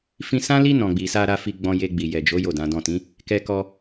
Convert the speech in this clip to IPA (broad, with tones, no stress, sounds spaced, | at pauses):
f ĩ˧ s ã˦ l i˦ n ɔ̃˧ ɡ͡b i˧ s a˧ ɾ a˧ f i˧ ɡ͡b ɔ̃˧ j e˧ ɡ͡b i˨ j ɛ˨ d͡ʒ o˨˦ j o˦˨ d ã˨˦ d ɔ̃˦˨ t ĩ˨˦ | k ɛ˧ k ɔ˧